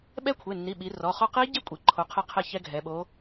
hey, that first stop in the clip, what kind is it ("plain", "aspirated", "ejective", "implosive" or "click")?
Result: implosive